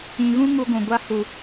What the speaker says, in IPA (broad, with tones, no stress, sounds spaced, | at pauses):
ĩ˨ ɣ ũ˦ ŋ u˧ ɡʷ ũ˨ ɡʷ a˧ h u˨